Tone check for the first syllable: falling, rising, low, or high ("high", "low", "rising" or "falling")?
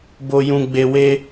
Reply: low